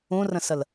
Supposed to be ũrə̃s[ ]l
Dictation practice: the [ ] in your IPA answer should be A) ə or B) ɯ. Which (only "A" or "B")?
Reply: A